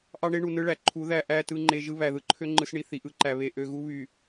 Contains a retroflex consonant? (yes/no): yes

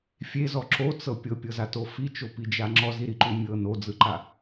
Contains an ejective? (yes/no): no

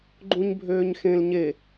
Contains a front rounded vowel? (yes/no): yes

